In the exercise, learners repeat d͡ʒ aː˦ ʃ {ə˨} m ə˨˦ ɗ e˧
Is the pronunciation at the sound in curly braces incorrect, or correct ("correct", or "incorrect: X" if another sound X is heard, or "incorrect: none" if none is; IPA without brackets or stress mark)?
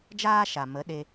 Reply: incorrect: a˨